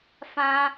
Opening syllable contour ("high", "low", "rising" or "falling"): high